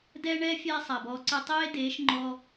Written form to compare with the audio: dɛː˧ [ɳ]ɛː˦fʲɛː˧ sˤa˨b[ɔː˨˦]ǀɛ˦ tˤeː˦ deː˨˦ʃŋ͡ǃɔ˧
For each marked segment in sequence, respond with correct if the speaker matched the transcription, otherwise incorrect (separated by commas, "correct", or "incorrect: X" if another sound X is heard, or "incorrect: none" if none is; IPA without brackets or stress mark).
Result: correct, incorrect: ɔː˧